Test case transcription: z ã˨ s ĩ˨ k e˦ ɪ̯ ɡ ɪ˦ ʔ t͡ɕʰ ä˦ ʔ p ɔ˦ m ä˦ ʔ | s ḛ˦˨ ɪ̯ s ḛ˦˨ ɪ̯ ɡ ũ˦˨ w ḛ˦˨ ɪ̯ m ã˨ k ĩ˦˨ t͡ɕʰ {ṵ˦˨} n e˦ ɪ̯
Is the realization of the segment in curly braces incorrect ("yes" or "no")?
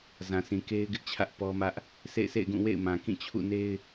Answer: no